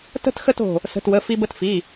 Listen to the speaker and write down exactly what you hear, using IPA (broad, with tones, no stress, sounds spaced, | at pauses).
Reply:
t ə̤˥˧ t x ə˥˧ t o̤˧˩ | s ə̤˩˧˩ t w ə˩˧˩ f i˧ b ə˧ t f i˩˧˩